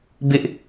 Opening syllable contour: high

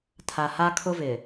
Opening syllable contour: low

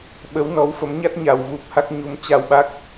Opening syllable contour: rising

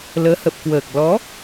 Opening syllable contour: rising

